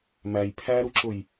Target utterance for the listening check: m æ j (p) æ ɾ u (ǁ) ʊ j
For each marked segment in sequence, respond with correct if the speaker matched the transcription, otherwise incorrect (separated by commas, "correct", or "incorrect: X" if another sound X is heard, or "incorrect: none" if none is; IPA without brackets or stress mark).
incorrect: pʰ, correct